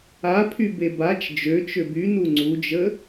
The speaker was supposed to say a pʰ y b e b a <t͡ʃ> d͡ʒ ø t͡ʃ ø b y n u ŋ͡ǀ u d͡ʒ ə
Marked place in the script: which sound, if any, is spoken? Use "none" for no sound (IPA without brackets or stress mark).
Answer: t͡ʃ